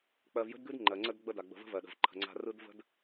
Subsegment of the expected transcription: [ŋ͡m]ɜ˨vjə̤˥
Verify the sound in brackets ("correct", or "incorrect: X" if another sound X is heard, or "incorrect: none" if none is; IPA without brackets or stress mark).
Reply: incorrect: k͡p